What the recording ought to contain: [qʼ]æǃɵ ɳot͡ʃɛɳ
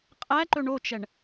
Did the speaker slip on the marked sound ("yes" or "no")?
no